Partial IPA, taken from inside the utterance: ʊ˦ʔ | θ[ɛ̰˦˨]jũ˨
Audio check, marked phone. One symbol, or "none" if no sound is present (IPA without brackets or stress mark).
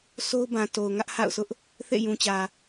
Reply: ḛ˦˨